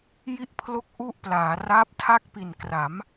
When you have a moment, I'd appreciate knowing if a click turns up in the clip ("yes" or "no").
no